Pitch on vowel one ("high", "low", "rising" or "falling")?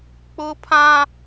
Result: high